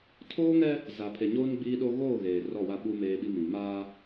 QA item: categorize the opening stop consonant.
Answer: aspirated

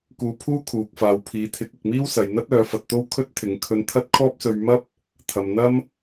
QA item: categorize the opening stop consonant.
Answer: plain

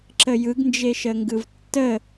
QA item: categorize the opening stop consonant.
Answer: click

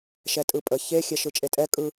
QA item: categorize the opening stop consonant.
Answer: ejective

